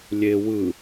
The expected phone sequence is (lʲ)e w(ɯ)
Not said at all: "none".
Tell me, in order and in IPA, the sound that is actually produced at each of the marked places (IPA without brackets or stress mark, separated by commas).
lʲ, ɯ